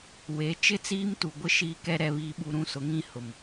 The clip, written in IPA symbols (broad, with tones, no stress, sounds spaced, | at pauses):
w e˨˦ t͡ʃ ɪ˦ t͡s iː˦ m t u˨ ɡʷ ɪ˦ ʃ iː˦ k ɛ˦ ɾ ɛ˨ β iː˨ ɓ u˨ ɾ ũ˦ s ʊ˨˦ ŋ ĩ˦ h ʊ˨ m